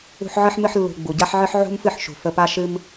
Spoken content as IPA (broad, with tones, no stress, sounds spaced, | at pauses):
ṳ˧ ħ ʕ ɨ˧ ħ m ɨ˧ ħ lː ṳ˨ ɡ͡b u˨ ɟ a˦ ħ ʕ ɨ˦ ħ ʕ ṳ˦ m f ɨ˦˨ ħ ʃ ṳ˨ f ə˧ p a˦ ʃ ɨ˦ m